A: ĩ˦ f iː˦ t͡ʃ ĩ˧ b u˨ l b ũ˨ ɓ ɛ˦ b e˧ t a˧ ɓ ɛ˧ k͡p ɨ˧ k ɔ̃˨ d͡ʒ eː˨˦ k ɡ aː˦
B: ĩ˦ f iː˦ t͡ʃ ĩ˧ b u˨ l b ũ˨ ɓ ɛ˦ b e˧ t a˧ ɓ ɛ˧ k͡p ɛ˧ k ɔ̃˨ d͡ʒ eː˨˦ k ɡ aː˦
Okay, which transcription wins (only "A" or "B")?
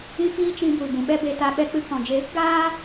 A